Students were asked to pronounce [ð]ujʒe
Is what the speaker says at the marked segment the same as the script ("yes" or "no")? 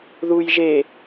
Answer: yes